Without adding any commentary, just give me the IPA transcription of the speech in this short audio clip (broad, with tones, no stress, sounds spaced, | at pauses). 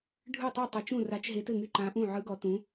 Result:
ɖʱ ɯ˥˨ tˤ u˥˨ tˤ ɘ˧˥ t͡ʃ ũ˥˨ r a˧˥ t͡ʃ ɦ e˧˥ t ɘ˥˨ ŋ y˥˨ ǃ ã˧˥ ʔ ũ˥˨ ʕ ɯ˧˥ ɡ ɔ˧˥ t ũ˧˥